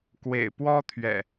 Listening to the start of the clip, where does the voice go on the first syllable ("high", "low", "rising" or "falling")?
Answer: low